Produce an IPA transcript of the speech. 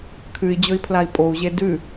kʰ ʉ i̯ d͡ʑ ɵ i̯ pʰ l a i̯ pʼ o u̯ ʑ e d ʉ

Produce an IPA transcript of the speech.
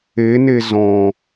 e n e z ɔ̃

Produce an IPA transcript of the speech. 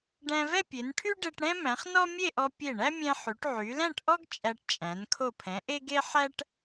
ɖ æ̃˧ v ɛ˥˧ pʲ e˩˧ n ʈʰ y˥ ɖ e˧ ʈ ɽ ɛ̃˥ m æ̃˩˧ χ n ɔ˥ mʲ e˥˧ ʔ ɔ˧ pʲ e˧˩ ɳ æ˥ mʲ ɛ̃˧ ħ y˩˧ ʈ ʕ y˩˧ l æ̃˥˧ ʈ ʔ ɔ˥ ɡ t͡ʃʼ æ˧ ʈ t͡ʃʼ æ̃˩˧ n kʰ o˧˩ pʰ ɛ̃˩˧ ʔ e˥ ɡ e˥ ħ æ˥ ʈ

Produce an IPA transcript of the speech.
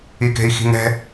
i k e̤ i̯ x i̤ ŋ ɛ̤

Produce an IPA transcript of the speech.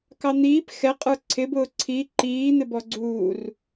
k ɑ n̪ iː p x ɛ qʼ ə˞ ǀʰ ɪ b ʊː ǀʰ i ǃ iː n̪ ɪ b ɔ ɡ͡ǀ uː r

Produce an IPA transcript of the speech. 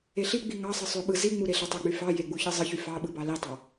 e ɬ i ɡ͡b i ŋ ɑ sˤ ɯ sˤ ø ɓ ɯ z i ŋ͡m u ɾ e ɬ e tˤ o ɡ͡b y f ɑ j e ɡ͡b u ç ɯ zˤ ɯ ç y f ɑ ɓ ɯ b ɑ l i tˤ ɑ

